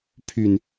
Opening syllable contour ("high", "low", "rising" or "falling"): low